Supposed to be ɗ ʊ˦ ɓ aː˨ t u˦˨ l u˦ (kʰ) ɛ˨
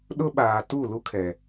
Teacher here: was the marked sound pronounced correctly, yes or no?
yes